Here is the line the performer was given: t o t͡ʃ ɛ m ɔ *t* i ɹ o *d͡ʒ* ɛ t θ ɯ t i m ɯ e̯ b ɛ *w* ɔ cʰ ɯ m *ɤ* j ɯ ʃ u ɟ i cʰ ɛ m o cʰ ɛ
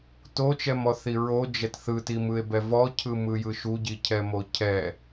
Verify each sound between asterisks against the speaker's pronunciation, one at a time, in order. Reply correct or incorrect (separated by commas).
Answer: incorrect, correct, incorrect, incorrect